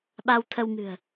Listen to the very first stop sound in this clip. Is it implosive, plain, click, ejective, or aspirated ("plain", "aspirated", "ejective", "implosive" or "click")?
implosive